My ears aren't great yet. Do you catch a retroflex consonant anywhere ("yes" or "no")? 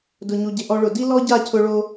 yes